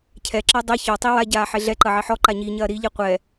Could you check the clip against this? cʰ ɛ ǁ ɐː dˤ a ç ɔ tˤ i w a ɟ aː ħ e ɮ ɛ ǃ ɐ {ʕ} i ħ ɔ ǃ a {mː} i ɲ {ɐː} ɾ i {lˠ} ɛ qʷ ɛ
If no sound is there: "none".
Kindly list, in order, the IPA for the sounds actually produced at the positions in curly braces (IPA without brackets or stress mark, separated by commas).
ʕ, ɲ, ɐː, ʎ